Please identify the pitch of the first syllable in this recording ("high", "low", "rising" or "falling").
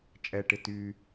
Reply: low